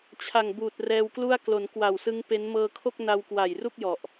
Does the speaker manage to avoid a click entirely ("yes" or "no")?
yes